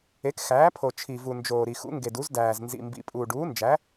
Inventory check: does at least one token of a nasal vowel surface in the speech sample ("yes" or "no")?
no